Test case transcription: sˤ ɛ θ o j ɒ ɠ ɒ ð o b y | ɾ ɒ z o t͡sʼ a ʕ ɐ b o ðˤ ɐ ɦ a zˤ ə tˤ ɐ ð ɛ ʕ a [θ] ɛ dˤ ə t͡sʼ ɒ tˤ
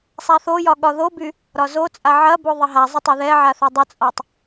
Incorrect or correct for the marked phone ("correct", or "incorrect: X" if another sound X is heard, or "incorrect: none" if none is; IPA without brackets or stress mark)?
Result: correct